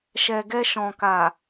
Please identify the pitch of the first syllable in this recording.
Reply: low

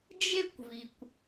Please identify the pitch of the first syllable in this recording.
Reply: high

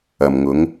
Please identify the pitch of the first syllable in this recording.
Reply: low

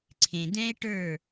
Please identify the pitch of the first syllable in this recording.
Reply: low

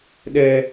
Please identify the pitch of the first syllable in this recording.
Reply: high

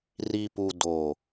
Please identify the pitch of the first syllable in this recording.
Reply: low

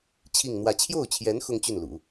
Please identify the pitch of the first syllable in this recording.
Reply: falling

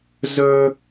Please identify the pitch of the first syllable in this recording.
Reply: high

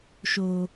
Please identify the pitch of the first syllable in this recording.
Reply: low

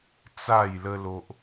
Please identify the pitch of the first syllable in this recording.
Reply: falling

